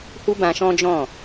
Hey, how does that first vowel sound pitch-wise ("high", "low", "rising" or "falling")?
high